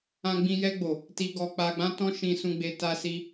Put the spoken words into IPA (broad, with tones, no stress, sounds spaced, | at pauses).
ã˧ ɡ͡b ĩ˧ j ɛ˧ ɡ͡b o˨ | t i˧ ɡ ɔ˧ k͡p a˧ ɡ͡b ã˦ t ɔ̃˦ ʃ ĩ˦ s ũ˦ ɡ͡b e˦ t a˧ s i˧